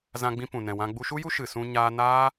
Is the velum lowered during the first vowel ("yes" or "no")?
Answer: yes